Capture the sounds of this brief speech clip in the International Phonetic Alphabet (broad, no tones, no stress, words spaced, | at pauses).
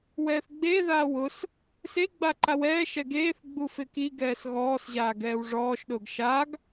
wɛːθɡ͡beðaː wʊs | seɡ͡ba ǃawɛːʃɛ ɡeːθ ɡ͡bufɪkiɡɛːs ɣɔːsʑaː ɡɛːwʐɔːʃɗʊːɡ ʃaɡ